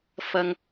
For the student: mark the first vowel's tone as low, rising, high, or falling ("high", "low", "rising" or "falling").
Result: low